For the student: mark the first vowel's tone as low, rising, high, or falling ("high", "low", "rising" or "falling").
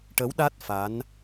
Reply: rising